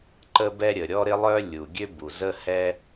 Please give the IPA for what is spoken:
ǃə˥bɛ˥ ɾʲə˩ɾʲɔ˥ɾɪ˥lˠœ˥ lʲu˩ ɡʲø˥bu˩ zə˥hɛ˥

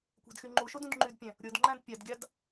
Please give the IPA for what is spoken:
kʷæ̤dxyŋ͡ǃuʃod ũdŋ͡ǃydpʲæ̃ | ɾʲodŋ͡ǃæ̃d pʲɑdɡʲɑd

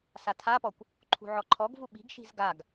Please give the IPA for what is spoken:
satʰapɔkʷ | ǃʰṳʕɔǃʰɔɡvu ɓi̤ɡʃi̤z ɡaɡ

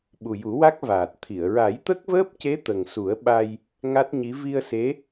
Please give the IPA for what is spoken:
ɓu˨˩ju˨˩˦wa˦˥k̚ vaː˨˩t̚t̪ʰi˨˩˨ə̯ ɹa˨˩˦jt̪ə˦˥k̚vəː˦˥p̚ce˧˥ t̪ə˨˩ŋsu˨˩˦ə̯ ɓa˧j | ŋa˦˥t̚ɲi˧˥ vi˧ə̯se˧˥

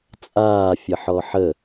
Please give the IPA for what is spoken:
t͡sʼaː fʲəħɔħə

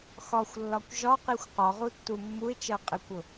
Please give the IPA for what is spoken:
xɒxʷlːɒkʷ ʒɒqixʷ qɒʁutːu mːuɪ̯t͡ʃɜ qʼɪkʷʊ

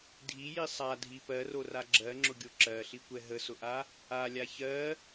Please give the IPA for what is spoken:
dʱiji sˤadʱi pɜrora ɡ͡ǁɜŋ͡ǁʊɡʲo ǁɜɬikʷɛ ɦəsʊʔa | alʲa çɜ

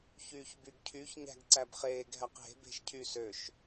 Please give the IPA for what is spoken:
çyːçbyɡcʰyç ɲæ̤ɡǀæbχeːɡ ɦæqɦe̤ be̤ʃcʰy søʃ

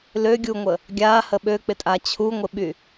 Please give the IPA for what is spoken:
løɡʲuŋʷə | ɡʲa həɓøk͡pɪtʼa t͡ɕʰuŋʷɪɓy

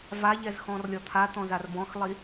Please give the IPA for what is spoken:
vaʎɛzxɔ̃rlʲɔ t̪ʰat̪ɔ̃zar bɔ̃xlˠi

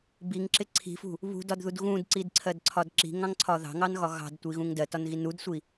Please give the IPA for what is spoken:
biŋǁɪ ǀʰi̤fṳ | βṳdɒdðud ɣũdǀidǀʰɜdǀʰɒd ǁi̤ŋɑ̃ŋǀʰɒ ðɑ̤ŋɑnɣɒ ɣɑ̤dtʷiɣũŋ dɜtɒnɣin udsʷi

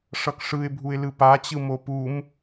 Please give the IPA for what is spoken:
ʂʌkʂɯɪ̯bʱuɪ̯lɯ pat͡ɕɯ mopum

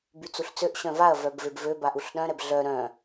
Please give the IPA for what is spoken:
byt͡suɬt͡søʔ ɕœ̃vaɐ̯ vœbvebvø baʔuɬɗœ̃ ɾɛbɮœ ɾœ̃

